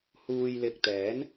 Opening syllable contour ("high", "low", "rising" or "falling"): low